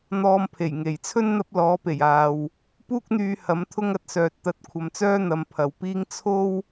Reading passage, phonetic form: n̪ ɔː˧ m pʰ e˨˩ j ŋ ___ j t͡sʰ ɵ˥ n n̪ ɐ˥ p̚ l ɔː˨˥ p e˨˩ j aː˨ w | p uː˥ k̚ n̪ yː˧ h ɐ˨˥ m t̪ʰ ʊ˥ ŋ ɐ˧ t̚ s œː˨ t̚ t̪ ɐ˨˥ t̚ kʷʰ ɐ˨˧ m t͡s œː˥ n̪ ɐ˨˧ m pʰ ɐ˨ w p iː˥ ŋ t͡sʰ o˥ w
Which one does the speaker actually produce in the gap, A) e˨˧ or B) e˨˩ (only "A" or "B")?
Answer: B